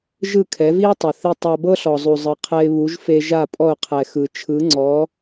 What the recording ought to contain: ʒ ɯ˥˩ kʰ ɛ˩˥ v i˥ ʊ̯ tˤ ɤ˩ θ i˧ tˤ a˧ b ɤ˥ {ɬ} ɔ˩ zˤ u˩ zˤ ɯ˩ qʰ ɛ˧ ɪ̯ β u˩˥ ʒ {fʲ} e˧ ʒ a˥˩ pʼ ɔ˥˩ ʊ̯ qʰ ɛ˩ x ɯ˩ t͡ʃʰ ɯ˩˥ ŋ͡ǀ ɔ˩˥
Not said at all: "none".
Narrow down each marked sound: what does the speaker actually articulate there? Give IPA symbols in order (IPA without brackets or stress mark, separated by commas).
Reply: ɬ, f